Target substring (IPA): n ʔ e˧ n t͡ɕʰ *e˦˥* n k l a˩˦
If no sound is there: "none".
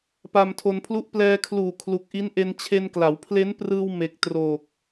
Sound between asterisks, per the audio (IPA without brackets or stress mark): e˧